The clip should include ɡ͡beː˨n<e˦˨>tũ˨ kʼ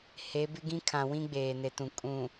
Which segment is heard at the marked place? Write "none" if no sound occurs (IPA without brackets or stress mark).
e˨